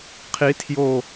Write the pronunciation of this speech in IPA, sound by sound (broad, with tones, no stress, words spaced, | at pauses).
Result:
qʰi˨˩˦ tʰjo˧˩